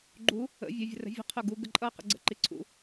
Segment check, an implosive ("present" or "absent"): absent